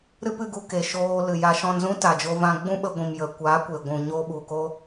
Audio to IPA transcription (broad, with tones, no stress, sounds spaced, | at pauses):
ɾ ɨ˦ p ɨ˧ ɡ u˧ k e˨ ʃ oː˧ l ɨ˨ j a˧ ʃ ɔ̃˧ n z ũ˧ t a˨ d͡ʒ o˧ v ã˧ ɡ͡b ũ˦ ɓ ə˧ ɡʷ ĩ˨ m j ə˨ kʷ a˨˦ kʷ e˨ ɡʷ ũ˨ ɲ o˧ ɓ u˨ k o˧